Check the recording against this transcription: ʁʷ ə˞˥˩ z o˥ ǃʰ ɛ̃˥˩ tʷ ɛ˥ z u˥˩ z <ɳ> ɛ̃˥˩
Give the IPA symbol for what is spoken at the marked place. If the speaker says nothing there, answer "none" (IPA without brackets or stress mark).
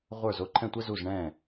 ɳ